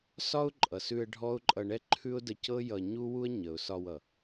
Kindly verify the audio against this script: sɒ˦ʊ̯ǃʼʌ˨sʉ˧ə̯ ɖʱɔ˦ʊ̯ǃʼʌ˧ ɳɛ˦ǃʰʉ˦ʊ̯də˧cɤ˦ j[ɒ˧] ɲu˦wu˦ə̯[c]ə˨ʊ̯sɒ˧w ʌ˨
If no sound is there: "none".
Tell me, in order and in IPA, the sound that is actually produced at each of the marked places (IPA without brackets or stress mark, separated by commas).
ʌ˧, ɲ